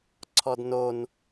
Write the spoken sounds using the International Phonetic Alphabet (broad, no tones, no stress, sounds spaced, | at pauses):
ǀʰ ɔ d n o n